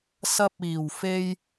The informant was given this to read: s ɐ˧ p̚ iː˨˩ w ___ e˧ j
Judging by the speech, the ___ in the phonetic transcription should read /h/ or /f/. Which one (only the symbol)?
f